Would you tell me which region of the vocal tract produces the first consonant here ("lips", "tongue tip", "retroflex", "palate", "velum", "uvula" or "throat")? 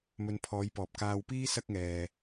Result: lips